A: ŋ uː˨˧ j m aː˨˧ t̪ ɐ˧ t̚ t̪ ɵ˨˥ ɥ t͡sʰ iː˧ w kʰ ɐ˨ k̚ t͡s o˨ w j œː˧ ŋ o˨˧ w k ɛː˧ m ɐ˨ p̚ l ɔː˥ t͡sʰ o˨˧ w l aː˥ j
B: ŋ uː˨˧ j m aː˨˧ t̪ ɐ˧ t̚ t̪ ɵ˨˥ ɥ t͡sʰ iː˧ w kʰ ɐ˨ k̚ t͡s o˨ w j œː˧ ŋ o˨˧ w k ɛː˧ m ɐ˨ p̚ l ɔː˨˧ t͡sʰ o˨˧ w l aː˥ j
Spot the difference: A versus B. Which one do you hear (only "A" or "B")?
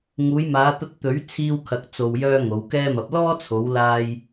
A